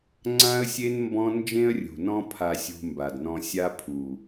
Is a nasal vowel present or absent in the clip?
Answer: present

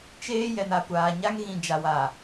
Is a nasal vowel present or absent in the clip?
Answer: present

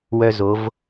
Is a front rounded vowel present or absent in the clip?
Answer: present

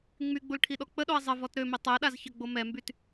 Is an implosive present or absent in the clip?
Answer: present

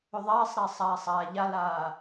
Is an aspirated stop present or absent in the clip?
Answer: absent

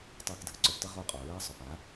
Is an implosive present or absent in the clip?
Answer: absent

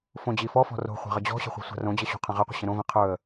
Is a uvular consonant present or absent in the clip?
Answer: present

